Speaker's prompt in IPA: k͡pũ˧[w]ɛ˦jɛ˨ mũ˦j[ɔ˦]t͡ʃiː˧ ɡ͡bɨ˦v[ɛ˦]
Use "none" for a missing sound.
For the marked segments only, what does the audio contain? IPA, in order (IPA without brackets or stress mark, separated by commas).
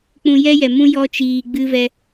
j, ɔ˦, ɛ˦